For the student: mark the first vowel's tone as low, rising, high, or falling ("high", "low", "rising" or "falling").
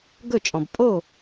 falling